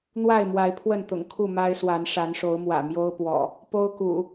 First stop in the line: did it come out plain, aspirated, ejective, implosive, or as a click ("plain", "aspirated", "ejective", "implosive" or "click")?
aspirated